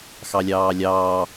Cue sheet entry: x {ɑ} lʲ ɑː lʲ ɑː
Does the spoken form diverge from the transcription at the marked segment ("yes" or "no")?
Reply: no